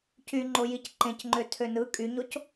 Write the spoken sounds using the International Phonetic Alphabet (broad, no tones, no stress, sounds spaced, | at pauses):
c y ŋ͡ǃ o j i c ǃ ẽ c ŋ͡ǃ ø tʰ ø n ɯ kʼ y ɲ o c